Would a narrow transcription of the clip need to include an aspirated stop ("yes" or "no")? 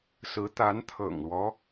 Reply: yes